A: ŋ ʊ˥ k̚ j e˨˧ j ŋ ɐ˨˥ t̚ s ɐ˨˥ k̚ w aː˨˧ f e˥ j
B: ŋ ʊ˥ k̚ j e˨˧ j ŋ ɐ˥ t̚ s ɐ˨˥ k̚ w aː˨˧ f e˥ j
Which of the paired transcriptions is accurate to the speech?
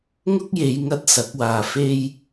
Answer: B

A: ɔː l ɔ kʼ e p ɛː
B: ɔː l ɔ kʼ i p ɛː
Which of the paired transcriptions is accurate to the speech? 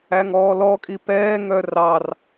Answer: B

